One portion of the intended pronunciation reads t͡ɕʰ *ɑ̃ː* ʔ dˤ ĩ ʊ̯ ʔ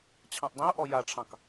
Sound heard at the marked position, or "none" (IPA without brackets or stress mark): ɑ̃